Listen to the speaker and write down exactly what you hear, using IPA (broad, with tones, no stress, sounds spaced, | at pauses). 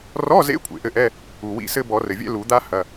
r ɔ˧˥˧ z ḛ˧˥˧ kʷʰ ḛ˩ ʔ ɘ˦˨ ʔ ɛ˧˥˧ | u˩ w ḭ˦˨ s ɘ˥ b ɔ˨˩˦ r ɘ˩ vʲ ɛ̰˥ l u˨˩˦ d̪ a˥ h ɐ˧˥˧